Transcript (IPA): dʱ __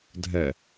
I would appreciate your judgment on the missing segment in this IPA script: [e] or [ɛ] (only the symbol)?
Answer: ɛ